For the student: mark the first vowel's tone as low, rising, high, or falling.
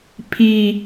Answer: low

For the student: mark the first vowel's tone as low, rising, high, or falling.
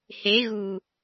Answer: rising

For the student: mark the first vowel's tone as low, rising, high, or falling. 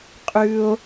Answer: high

